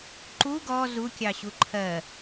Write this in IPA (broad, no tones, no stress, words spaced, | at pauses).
ǃu ɡɔ zu kʲɑɕuǃʰɜ